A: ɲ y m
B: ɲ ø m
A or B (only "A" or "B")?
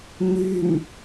A